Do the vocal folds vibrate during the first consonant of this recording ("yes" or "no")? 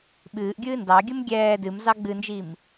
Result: yes